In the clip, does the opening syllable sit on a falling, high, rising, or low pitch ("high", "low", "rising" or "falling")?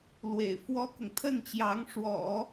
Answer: low